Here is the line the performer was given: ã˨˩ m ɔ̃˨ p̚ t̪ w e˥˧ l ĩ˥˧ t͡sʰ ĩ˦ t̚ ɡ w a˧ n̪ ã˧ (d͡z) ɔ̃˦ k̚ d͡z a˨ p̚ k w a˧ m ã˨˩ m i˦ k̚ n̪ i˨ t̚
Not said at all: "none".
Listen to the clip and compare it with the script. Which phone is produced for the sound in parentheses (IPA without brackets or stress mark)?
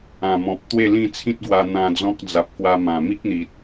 d͡z